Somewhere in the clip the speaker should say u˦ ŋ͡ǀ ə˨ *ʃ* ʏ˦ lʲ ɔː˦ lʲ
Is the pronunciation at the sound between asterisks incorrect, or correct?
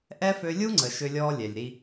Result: correct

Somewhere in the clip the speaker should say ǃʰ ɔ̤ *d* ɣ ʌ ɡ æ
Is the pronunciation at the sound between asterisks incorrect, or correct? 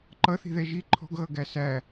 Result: incorrect: ɡ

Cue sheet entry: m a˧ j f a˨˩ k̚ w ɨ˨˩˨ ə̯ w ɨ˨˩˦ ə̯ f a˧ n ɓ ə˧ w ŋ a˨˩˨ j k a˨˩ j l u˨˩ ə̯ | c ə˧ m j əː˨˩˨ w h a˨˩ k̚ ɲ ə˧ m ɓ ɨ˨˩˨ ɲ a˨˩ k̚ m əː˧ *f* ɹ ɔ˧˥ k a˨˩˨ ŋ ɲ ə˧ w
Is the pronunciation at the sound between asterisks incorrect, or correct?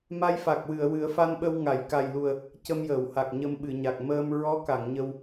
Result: incorrect: m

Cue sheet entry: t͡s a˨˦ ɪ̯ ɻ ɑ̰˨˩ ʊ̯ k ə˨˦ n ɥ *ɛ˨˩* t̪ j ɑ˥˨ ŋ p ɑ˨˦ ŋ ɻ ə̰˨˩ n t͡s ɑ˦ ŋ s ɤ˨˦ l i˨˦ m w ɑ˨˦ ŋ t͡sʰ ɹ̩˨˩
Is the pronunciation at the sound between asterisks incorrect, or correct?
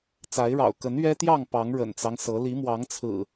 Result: incorrect: ɛ˦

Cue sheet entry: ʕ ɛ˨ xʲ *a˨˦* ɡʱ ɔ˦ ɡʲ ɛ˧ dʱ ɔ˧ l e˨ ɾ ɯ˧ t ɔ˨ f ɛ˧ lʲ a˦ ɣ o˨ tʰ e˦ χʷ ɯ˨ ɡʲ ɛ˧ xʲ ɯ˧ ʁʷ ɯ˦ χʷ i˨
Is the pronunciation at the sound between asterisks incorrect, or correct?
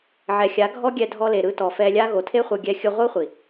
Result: correct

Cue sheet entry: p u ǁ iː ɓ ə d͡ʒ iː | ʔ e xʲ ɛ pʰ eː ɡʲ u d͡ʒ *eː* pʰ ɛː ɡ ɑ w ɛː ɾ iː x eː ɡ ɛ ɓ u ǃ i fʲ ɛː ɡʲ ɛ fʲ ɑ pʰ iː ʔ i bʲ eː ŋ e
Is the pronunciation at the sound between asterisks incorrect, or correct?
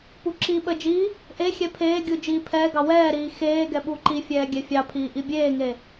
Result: incorrect: iː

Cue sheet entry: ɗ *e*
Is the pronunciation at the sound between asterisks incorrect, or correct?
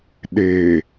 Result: correct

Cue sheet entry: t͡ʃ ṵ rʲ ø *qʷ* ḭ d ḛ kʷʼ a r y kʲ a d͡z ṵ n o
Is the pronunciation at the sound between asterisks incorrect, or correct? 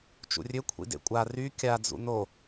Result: incorrect: kʷʰ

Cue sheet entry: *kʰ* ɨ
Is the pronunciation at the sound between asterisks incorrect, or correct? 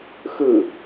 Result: incorrect: x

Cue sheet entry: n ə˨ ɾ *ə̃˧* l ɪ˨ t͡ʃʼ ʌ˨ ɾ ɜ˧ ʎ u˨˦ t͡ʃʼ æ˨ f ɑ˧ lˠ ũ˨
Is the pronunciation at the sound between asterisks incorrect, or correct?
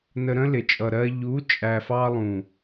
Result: correct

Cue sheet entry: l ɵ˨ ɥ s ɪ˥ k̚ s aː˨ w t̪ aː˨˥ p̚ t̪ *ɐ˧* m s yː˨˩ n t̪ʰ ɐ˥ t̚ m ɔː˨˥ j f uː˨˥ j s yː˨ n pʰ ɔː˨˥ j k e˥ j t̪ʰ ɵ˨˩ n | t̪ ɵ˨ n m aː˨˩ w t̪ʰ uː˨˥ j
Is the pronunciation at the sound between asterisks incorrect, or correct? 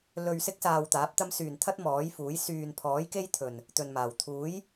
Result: incorrect: ɐ˥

